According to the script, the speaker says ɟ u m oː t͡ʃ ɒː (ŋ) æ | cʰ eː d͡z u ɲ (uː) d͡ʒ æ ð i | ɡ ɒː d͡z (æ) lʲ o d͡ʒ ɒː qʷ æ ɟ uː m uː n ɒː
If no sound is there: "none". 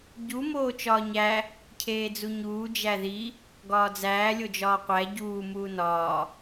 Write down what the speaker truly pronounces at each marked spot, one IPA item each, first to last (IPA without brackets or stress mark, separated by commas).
ɲ, uː, æː